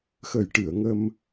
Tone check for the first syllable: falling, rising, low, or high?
low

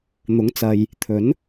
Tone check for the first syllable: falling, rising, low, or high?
rising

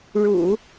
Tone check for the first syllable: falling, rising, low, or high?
low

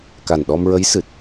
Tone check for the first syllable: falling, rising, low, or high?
low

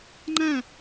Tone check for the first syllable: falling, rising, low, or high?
falling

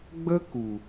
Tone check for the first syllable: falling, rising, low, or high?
high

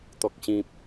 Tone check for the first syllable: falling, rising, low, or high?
low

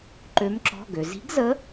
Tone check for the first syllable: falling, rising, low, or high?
rising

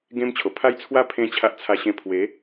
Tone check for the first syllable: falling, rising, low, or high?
high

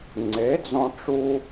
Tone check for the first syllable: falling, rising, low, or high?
rising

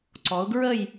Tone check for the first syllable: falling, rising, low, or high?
rising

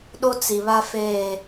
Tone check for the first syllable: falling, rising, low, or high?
high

